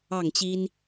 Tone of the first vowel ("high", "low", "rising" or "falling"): falling